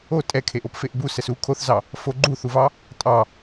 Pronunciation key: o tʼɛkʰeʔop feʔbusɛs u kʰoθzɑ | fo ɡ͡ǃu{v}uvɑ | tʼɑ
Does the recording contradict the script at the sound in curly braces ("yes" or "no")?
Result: yes